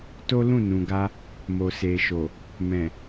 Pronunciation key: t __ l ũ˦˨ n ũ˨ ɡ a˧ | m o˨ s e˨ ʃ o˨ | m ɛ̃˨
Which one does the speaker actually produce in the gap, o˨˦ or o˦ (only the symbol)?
o˦